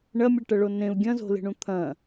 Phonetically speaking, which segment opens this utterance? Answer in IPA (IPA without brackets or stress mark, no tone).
ɳ